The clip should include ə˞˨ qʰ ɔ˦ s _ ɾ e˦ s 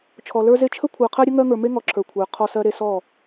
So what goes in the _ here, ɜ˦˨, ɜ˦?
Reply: ɜ˦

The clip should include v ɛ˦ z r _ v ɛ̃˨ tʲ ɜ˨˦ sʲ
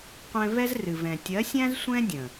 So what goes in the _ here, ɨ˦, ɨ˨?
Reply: ɨ˨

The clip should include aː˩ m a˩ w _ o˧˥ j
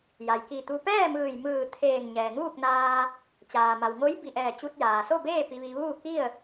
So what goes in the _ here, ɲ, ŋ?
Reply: ŋ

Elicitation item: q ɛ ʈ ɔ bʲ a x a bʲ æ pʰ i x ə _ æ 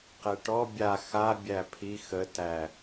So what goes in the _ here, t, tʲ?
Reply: t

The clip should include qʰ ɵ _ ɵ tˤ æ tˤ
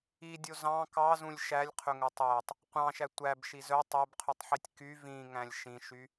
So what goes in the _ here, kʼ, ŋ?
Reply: ŋ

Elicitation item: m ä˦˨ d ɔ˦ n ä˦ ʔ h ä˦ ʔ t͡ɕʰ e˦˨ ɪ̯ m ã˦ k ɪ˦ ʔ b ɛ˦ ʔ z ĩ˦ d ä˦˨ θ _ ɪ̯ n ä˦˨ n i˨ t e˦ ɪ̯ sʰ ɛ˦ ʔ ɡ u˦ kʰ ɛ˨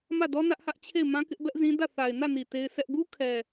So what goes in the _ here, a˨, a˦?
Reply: a˨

